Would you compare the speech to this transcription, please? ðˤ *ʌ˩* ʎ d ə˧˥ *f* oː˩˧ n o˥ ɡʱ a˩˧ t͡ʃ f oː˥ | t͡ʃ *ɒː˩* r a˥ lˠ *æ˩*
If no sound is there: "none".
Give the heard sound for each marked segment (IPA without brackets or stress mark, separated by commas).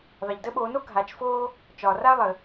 ə˩, ɓ, ɒː˩, ə˩